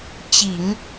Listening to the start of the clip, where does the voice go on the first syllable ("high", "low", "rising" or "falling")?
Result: low